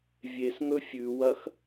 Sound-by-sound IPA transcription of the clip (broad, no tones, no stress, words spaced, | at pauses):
vʲesŋɵ fʲʉwɐx